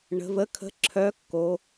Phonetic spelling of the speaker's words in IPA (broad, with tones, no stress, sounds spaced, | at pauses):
ɳ ə̤˩˧ v ə˨˥ kʰ ə̤˨˥ ǁʰ œ˨˥ kː o˩˧